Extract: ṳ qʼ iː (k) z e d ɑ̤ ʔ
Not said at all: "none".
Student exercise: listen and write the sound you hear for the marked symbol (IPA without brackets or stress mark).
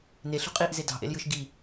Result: ʔ